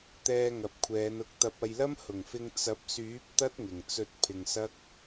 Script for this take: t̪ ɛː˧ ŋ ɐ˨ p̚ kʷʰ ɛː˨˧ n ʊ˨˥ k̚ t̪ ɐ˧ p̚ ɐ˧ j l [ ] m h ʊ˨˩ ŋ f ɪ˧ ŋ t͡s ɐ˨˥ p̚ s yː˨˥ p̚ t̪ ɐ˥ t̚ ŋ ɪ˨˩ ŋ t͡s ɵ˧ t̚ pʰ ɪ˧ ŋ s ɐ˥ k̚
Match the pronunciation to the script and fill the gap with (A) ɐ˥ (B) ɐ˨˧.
A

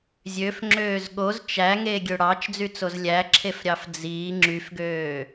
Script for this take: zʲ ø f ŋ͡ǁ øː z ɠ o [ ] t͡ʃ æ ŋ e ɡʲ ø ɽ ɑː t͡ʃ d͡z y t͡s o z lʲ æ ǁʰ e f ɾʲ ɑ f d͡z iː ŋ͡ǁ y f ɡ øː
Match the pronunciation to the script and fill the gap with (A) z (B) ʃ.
A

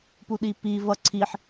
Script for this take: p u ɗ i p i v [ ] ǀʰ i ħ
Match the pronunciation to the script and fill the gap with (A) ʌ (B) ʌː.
A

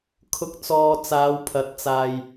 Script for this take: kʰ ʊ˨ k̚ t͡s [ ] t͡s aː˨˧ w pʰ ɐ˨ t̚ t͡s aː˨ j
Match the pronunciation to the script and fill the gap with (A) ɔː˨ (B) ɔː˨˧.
A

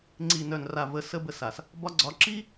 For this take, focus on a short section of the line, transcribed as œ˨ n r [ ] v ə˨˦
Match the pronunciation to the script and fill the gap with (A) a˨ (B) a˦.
A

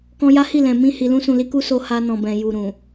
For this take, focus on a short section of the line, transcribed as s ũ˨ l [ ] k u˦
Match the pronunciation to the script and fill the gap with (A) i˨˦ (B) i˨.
A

